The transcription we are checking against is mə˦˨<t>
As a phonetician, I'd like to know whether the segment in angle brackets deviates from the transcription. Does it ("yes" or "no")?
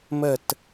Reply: no